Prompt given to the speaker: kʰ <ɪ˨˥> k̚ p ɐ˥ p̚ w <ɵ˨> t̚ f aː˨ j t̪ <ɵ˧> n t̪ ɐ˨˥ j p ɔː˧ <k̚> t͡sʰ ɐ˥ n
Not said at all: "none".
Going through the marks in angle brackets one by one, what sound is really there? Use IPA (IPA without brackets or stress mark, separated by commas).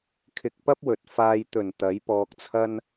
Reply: ɪ˧, ɵ˨, ɵ˨˩, k̚